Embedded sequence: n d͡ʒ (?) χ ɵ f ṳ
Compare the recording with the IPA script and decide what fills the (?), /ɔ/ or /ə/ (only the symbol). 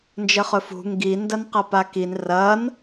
ə